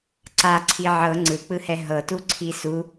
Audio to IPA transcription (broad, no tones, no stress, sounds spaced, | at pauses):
ǀ a ǀʰ i ʕ ɤ ŋ͡ǀ ɯ k͡p ɯ h ɛ ɦ ɤ t u ǀʰ i s u